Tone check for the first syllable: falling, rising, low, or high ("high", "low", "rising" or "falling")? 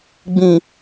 low